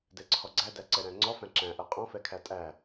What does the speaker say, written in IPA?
dɛǀʰɔɡ͡ǀæ dæǀɛɾæ̃ŋ͡ǀɔ fæ̃ǁæ̃ʔɜ qʼɔ̃fɛkʰæ tʼæ

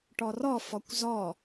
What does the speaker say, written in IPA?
ʈɔrɔ fɔkʷzɔ

